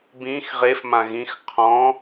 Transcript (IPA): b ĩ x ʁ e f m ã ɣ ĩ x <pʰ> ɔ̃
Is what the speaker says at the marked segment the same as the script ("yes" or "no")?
no